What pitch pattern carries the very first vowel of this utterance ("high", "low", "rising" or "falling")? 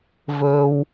low